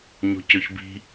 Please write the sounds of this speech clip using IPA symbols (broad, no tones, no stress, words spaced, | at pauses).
ɲo̤cøçbi̤